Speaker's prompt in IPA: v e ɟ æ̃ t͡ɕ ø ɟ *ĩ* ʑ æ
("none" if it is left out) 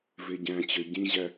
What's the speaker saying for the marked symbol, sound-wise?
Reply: ĩ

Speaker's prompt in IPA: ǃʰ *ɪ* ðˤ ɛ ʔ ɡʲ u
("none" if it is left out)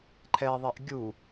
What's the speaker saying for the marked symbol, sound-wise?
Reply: ɛ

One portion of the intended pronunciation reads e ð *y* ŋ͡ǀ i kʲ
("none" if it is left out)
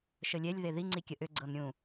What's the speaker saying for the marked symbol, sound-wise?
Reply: i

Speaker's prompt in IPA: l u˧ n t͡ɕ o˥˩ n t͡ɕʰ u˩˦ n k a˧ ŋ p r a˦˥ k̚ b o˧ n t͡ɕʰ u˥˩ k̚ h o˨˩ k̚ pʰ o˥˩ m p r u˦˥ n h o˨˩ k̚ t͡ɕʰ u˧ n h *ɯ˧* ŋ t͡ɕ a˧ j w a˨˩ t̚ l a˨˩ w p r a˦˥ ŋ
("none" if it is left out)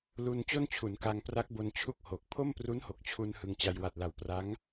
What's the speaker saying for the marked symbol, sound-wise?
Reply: ɯ˧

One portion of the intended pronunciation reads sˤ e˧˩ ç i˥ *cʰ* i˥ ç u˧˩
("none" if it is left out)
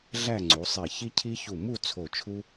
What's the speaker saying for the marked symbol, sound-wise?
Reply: cʰ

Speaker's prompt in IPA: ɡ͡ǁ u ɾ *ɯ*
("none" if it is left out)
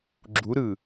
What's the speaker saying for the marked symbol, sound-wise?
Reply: ɯ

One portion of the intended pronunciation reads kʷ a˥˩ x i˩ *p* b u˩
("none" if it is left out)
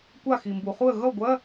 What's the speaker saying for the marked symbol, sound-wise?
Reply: m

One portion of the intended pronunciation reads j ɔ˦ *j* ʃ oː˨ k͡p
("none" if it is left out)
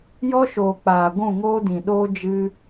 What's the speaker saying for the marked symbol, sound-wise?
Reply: none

